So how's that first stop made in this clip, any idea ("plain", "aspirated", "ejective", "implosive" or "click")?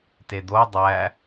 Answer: plain